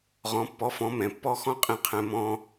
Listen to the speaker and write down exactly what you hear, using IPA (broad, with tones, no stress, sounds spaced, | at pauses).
ʁ ɔ̃˨˦ pː ɔ˨˦ f ɔ̃˨˦ m ɛ̃˨ pː ɔ˦ x ɔ̃˦ qʼ ĩ˨ qʰ ɛ̃˨ m ɔ̃˦